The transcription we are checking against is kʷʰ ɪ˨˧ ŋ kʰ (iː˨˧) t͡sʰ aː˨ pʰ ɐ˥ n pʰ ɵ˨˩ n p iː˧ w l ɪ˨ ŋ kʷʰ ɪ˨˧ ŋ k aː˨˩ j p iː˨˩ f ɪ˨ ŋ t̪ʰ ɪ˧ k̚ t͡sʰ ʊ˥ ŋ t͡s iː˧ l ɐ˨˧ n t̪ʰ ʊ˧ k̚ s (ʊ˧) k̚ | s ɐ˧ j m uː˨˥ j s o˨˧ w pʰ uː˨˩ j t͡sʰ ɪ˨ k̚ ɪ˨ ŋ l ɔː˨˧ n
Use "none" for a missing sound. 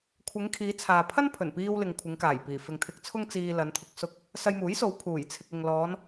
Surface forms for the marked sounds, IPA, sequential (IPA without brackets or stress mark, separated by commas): iː˨˧, ʊ˧